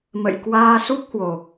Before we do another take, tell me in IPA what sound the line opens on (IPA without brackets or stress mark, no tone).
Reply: m